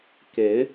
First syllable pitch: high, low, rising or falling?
rising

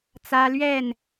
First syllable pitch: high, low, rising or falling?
high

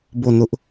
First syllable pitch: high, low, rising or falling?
falling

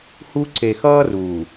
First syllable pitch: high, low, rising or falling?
high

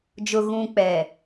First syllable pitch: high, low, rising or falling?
low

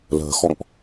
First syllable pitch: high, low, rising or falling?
low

